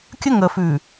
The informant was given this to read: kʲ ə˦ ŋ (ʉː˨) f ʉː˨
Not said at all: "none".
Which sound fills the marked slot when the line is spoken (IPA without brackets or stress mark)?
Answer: əː˨